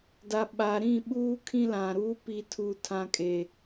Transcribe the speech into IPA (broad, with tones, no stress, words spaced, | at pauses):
da˨ɓaː˨ɾĩ˦˨ɓuː˦ kʰĩ˦lã˨ɾuː˦ pi˨tʰuː˨ tʰã˨kʼe˨